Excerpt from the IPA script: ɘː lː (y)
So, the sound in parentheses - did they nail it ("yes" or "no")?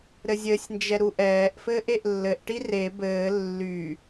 yes